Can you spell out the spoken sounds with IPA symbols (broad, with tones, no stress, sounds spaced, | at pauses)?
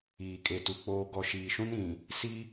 iː˨ kʼ e˨ t u˨ k͡p oː˨ ɡ ɔ˨ ʃ iː˨ ʃ ũ˦ n ĩ˨ | s i˦